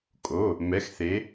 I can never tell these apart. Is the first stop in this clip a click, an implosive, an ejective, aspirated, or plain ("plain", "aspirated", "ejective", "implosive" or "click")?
ejective